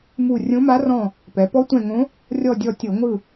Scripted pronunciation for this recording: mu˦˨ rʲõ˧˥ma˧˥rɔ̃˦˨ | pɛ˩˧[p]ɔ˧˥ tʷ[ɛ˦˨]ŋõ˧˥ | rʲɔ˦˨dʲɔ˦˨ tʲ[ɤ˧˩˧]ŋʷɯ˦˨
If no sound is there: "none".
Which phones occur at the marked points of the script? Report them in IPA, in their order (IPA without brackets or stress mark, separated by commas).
p, ɛ̃˦˨, ɤ˧˩˧